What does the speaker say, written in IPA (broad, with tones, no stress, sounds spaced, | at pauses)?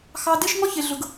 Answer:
x ɑ˧ d e˦ ʃ ŋ ɔ˦ ç e˨ ɮ ʊ˨ ɡ